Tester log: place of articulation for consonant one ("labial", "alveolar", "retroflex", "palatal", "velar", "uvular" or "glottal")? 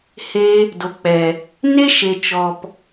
glottal